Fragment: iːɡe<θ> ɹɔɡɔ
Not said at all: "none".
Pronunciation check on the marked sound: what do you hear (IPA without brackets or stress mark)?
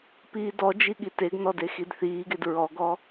d